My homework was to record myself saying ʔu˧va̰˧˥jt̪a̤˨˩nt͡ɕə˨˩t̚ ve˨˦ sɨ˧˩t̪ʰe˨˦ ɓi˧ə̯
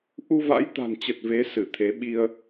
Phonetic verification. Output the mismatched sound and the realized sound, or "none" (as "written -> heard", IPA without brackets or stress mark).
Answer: none